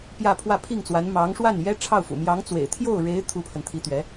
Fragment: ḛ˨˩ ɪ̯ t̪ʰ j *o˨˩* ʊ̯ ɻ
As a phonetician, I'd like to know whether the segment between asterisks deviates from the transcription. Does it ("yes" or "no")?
yes